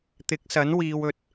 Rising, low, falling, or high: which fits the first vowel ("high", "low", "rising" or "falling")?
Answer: rising